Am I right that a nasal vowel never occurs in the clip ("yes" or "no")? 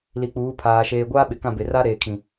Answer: no